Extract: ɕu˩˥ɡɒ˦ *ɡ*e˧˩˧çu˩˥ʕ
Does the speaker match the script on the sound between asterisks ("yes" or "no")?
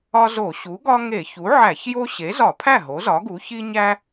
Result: no